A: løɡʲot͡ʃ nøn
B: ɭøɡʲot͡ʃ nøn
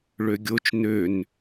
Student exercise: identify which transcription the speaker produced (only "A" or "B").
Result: B